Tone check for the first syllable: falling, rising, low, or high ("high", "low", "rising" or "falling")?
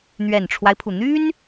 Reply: low